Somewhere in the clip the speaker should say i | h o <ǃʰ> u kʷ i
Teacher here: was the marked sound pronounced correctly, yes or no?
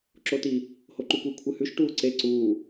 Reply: no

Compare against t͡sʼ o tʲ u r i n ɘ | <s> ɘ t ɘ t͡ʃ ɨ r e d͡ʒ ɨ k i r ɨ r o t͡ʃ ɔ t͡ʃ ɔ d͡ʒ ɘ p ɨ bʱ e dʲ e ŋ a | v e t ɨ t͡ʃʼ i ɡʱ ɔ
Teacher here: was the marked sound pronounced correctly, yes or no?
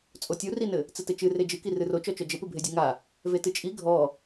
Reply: no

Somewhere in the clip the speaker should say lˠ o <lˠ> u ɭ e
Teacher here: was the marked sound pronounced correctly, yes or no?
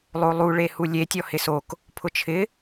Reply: yes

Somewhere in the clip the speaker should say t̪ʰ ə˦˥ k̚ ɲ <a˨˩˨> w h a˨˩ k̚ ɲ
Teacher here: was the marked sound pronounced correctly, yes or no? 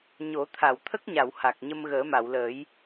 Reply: yes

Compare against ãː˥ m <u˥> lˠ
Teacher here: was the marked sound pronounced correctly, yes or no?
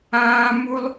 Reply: yes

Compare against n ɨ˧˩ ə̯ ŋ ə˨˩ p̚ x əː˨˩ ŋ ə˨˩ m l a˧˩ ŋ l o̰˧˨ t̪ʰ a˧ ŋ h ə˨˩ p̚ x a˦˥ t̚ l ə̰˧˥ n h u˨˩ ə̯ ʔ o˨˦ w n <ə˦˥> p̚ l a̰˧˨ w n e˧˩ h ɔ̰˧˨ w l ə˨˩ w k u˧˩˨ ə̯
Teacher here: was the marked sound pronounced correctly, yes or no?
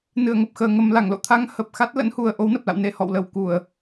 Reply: no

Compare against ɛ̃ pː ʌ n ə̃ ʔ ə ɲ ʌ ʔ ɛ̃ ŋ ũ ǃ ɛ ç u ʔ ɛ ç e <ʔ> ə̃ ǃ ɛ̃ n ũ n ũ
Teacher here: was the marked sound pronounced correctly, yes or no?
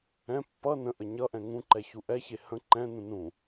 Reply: no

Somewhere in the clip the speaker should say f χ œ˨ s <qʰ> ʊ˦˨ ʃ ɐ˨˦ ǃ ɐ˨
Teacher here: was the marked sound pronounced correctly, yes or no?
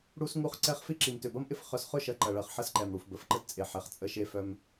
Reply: no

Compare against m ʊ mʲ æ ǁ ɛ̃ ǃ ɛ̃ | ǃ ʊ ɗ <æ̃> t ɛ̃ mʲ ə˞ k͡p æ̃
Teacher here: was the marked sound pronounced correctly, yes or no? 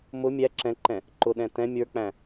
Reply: no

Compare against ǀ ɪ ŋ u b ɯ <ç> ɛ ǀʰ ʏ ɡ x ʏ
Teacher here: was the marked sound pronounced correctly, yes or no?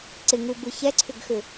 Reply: yes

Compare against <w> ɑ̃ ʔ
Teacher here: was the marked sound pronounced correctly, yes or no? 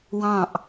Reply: yes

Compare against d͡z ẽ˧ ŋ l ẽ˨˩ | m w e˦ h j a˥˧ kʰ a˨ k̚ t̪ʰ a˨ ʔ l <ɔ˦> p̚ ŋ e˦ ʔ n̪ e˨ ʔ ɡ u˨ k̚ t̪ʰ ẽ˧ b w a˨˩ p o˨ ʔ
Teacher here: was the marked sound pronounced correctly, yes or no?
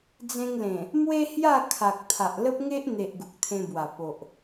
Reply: no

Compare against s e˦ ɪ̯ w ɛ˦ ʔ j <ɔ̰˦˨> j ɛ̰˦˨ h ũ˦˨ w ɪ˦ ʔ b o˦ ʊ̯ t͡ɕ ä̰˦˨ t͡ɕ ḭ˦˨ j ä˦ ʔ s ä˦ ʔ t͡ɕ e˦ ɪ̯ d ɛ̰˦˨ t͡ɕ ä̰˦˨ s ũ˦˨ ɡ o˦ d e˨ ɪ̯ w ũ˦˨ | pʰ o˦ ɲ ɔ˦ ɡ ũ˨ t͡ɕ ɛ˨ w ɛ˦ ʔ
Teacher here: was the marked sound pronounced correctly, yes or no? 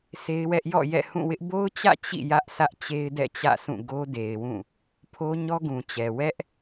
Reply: yes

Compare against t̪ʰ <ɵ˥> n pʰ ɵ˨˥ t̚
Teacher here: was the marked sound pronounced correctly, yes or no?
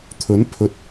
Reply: no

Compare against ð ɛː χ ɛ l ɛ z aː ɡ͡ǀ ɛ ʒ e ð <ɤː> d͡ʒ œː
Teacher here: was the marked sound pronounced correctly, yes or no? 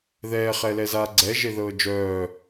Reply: yes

